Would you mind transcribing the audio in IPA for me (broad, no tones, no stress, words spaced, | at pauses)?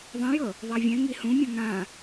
ðˤẽjɤ | ðˤavʲɛ̃ŋi hũmʲɔ̃ ŋã